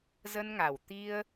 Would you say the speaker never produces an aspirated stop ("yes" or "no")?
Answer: yes